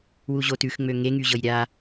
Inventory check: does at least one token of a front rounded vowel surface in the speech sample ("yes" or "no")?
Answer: yes